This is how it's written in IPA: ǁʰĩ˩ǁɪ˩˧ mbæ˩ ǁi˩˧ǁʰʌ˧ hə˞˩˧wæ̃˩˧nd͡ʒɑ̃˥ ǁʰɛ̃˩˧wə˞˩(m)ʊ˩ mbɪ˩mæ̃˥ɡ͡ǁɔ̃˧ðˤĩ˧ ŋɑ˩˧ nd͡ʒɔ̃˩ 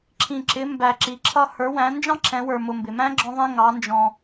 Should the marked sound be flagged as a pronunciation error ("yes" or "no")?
no